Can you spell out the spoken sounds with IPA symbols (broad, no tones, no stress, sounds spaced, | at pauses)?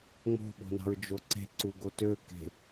ŋ͡m o̤ ɓ o̤ n ɑ̤ ɹ d͡ʒ o ǀ e̤ ǀ u ɡ o t ø k e̤